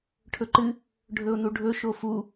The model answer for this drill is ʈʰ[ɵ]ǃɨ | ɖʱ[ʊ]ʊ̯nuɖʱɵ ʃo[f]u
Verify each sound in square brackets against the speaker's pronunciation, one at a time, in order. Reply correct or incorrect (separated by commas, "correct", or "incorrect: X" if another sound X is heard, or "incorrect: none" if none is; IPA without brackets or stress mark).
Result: correct, incorrect: ɵ, correct